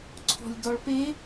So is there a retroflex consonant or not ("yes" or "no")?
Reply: yes